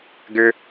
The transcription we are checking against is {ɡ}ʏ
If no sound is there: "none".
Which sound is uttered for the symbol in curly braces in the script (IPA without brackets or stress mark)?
ɡ